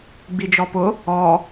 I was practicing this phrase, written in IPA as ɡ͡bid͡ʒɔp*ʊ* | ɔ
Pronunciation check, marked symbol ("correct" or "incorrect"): correct